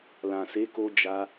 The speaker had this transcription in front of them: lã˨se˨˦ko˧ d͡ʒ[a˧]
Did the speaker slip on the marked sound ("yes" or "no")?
no